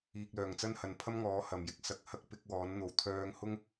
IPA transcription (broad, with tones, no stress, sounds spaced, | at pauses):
iː˧ k̚ l œː˨ ŋ t͡s ɐ˥ n h ɐ˨˧ n pʰ ɐ˥ m ŋ ɔː˨˥ h ɐ˨ m j ɪ˧ k̚ s ɐ˧ k̚ h ɐ˥ k̚ p ɪ˨˥ k̚ w ɔː˨˥ n n̪ o˨ w t̪ʰ œː˧ ŋ h ʊ˥ ŋ